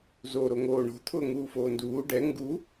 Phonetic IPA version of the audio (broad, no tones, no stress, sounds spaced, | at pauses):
z o ɾ o ŋ oː ɳ o̤ t̪ʰ ʊː ŋ uː f oː n d uː ɖ ɛ ŋ ɡ u